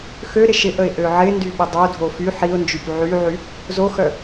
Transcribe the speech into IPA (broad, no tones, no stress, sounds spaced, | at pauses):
x ø ɾ ɪ ʃ ɪ ʔ ə ɪ̯ ʔ ø ʕ ɪ n d y ɓ ə dˤ o dʱ o f y ħ i ʊ̯ n d͡ʒ y p ʕ y ʕ y | z o x œ